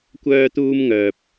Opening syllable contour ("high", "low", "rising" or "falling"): high